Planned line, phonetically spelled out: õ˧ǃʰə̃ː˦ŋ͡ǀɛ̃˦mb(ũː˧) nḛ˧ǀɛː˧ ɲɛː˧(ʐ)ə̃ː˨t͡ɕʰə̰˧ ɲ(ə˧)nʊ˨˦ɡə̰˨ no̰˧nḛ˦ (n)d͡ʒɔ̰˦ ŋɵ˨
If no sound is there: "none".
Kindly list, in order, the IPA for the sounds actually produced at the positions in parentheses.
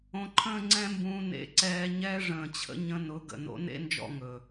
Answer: ũː˧, ʐ, ə̃˧, n

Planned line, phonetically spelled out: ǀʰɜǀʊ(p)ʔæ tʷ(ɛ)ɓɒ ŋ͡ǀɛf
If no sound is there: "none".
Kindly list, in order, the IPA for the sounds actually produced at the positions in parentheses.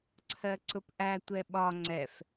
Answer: p, ɛ

